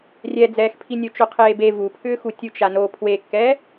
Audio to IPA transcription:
rʲ ɛ d͡z ɛː x pʰ i nʲ o t͡ʃ o qʰ eː b e v u pʰ ʏː x u tʲ u t͡ʃ a n o pʰ w e kː ɛ

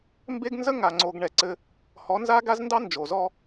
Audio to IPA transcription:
m b e˦ ɡ n z ə˦ ŋ a˨ ŋ͡ǀ o˨ ɡ ɳ ɛ˨ ǀ ɘ˦ | h ɔ˨˦ n z a˦ ɡ a˦ z n d ɑ˦ n d͡ʒ o˨ z ɔ˦

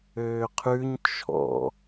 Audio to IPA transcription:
øː qʰ ʉ ɲ t͡ʃʰ ɔ̰

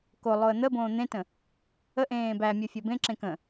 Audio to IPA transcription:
k o lˠ o ə̯ n̪ ə b õː n̪ ẽ t ə̃ | ə ʔ ẽː b æ mʲ o fʲ ɔ b ẽ ǁ ẽ k ə̃

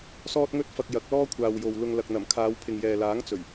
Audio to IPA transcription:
s ɔː˧ t̚ ŋ ɵ˧ t̚ f ɐ˨ k̚ j ɐ˨˥ k̚ l ɔː˥ kʷʰ aː˨ w j o˨ w l ʊ˨ ŋ l ɐ˨ k̚ n̪ ɐ˨˩ m kʰ aː˨˧ w pʰ ɪ˨ ŋ j ɛː˨ l aː˨˥ ŋ t͡s ɵ˨˩ ɥ

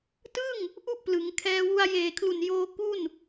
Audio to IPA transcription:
t ɯ˥˩ ŋ | ʔ u˥˩ ʔ p l ɯ˩˦ ŋ kʰ ɛː˧ w u˧ a̯ j eː˨˩ kʰ l u˨˩ n j oː˧ k u˥˩ n

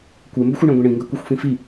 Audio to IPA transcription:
kʷ e m b ɵ xʷ ɐ ɳ ẽ ɡʷ ĩ ɳ ĩ ŋ ɡ ɐ kʷ i xʷ f ĩ f i

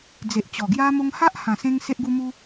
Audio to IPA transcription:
d͡z e˨ ʔ t͡ɕ ɔ˨˩ ɡ j a˧ m o˧ ŋ h a˦ ʔ h ã˨˩ s ẽ˧ ŋ s e˦ ʔ ɡ u˦ m u˦

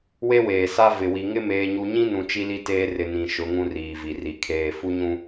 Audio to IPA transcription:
w e˦ w eː˨ s a˦ v ɪ˨ w i˨ ŋ ɪ˦ m eː˦ ɲ u˦ ɲ ĩ˦ n ũ˨ t͡ʃ i˦ l i˦ t eː˦ r ɪ˨ n ĩ˨ ʃ ʊ˨˦ ŋ ũ˦ r iː˨ v i˨ r i˨ kʰ eː˨ f u˦ ɲ ũ˦

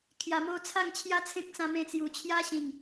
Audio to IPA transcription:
kʰ j a˨˩ m o˧ t͡sʰ a˥˧ ŋ t͡ɕʰ j a˦ t͡sʰ ẽ˦ k̚ t͡s ã˧ m ẽ˧ t͡s j u˨˩ t͡ɕʰ j a˦ ɕ ĩ˨˩ ŋ

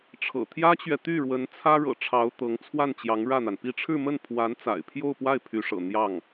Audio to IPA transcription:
ʈ͡ʂʰ ɤ̰˨˩ t̪ʰ j ä˥ t͡ɕ ɥ ɛ˨ t̪ y˥˩ ɻ w ə˧˥ n t͡sʰ ä˥ ɻ ɤ̰˨˩ ʈ͡ʂʰ ɑ˧˥ ʊ̯ t̪ ɤ˧˥ ŋ t͡sʰ w a˥˩ n t͡ɕ j ɑ˧˥ ŋ ɻ ä˥˩ n̪ a˩ n p i˥˧ ʈ͡ʂʰ ɻ̩˥˧ m ə˥˩ n pʰ w a˧˥ n t͡s a̰˨˩ ɪ̯ pʰ j o˥˧ ʊ̯ p w a˥˩ ɪ̯ pʰ y˧˥ ʂ ɤ̰˨˩ n̪ j ɑ˥˩ ŋ

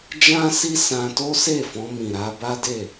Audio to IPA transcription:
d͡ʒ ã˦ s i˦ s ã˧ t o˦ s e˦˨ f ɔ̃˧ m ĩ˨ ɾ a˧ b a˦ d e˦˨

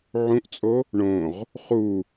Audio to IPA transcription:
ʕ ũ ʔ t͡sʼ o | ɳ õ ʁ | χ u

